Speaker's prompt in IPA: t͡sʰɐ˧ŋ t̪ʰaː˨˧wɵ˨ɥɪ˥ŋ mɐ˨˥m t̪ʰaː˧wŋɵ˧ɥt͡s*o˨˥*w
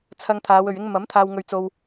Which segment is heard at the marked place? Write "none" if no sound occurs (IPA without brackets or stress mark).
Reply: o˧